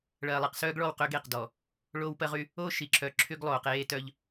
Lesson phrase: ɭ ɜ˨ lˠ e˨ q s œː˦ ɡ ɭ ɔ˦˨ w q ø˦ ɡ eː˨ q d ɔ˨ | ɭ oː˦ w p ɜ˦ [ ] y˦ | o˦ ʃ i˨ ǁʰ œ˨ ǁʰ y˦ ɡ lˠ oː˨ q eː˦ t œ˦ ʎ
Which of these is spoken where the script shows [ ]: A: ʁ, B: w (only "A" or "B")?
A